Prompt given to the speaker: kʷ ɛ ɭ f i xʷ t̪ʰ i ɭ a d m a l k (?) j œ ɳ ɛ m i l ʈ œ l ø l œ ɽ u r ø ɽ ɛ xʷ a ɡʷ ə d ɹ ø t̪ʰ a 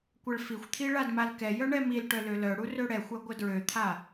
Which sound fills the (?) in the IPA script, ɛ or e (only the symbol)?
ɛ